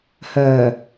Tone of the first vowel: low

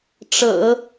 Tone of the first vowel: low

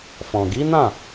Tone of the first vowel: low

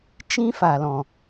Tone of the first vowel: high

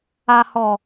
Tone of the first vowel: low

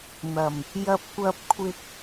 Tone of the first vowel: low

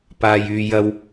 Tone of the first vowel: high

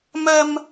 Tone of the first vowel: high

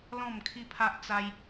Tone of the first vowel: falling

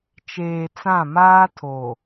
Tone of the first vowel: low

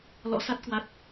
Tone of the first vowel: rising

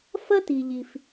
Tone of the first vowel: high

